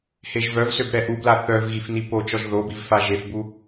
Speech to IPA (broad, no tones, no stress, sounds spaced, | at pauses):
h e ʒ v œ v s ø b ɾ ɛ ʔ u b l a θ œ v ɣ i f n i p o t͡ʃ ɔ ʒ ð o b i v f a ʒ e f b u